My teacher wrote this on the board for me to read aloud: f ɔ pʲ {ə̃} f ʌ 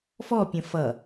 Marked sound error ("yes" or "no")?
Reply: no